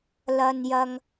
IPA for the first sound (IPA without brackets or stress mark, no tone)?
l